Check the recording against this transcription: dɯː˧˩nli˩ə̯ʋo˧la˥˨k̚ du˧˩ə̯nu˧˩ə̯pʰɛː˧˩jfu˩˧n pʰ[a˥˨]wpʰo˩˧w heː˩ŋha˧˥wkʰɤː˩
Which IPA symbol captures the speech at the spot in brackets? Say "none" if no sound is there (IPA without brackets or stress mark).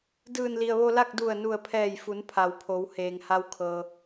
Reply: a˩˧